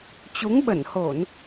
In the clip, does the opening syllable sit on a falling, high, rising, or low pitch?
rising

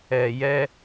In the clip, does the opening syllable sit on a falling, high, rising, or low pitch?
low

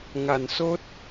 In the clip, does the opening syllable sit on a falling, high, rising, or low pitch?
low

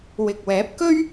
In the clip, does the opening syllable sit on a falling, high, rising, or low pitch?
low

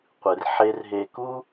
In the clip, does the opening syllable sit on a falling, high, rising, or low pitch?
low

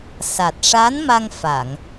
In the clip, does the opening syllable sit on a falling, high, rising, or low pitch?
low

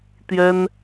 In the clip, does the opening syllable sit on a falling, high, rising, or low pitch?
high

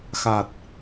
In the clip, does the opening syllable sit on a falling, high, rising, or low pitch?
low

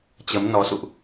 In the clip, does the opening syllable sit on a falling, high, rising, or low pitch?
rising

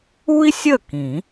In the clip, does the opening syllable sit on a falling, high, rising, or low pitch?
high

